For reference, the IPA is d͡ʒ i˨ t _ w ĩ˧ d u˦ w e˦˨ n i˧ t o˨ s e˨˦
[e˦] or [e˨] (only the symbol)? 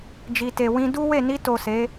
e˨